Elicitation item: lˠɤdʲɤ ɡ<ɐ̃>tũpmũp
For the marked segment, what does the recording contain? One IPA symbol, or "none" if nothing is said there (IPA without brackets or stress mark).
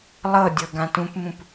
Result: ã